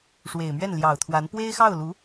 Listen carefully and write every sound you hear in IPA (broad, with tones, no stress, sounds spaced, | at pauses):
ʂ w e˨˩ ɪ̯ m ɥ ɛ˥˩ n l j ɑ˨˩ ʊ̯ t̪ʰ w a˧˥ n p w e˥ ɪ̯ x ɑ˥˩ ʊ̯ l u˧˥